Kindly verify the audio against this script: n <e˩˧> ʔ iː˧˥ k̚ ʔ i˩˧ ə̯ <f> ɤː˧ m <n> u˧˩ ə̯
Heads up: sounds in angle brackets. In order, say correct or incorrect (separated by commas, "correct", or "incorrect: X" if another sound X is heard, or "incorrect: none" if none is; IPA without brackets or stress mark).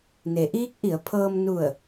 correct, incorrect: pʰ, correct